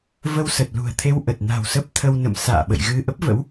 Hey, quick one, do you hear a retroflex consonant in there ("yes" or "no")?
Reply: no